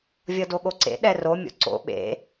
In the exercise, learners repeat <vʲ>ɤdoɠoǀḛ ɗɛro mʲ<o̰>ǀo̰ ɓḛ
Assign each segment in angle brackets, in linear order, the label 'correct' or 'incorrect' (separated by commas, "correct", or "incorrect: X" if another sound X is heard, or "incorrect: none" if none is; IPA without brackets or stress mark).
correct, correct